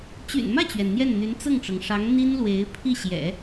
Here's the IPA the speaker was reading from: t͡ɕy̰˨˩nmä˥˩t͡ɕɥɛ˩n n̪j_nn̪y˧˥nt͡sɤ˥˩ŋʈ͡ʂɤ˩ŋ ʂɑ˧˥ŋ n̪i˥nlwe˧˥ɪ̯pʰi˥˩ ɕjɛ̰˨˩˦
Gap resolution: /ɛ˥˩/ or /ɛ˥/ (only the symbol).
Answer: ɛ˥˩